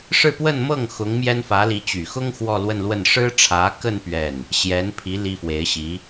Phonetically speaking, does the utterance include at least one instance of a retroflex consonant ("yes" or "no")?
yes